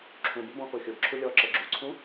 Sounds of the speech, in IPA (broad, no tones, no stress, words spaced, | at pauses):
ǁʰũbʊ bɔ̃koxʲʊbǁʰu lʲɔǁɤ ɡ͡ǁuǀʰũ